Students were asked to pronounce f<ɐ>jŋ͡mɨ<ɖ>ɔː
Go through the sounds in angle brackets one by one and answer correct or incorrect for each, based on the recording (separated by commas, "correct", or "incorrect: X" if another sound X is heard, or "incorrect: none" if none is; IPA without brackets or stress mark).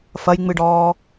correct, correct